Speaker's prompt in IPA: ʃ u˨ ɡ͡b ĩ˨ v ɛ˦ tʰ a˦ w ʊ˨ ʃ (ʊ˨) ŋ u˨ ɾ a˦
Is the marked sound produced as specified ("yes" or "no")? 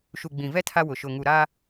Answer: yes